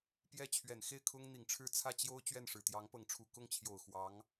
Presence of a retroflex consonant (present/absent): present